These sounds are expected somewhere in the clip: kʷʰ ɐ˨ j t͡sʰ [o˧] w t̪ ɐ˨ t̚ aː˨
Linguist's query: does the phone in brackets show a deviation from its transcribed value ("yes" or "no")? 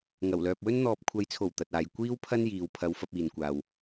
yes